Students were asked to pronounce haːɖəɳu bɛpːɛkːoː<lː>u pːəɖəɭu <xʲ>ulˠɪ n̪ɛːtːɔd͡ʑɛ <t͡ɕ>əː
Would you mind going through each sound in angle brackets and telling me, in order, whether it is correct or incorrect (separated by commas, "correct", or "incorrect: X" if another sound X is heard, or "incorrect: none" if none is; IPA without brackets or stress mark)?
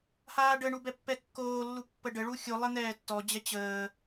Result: correct, correct, correct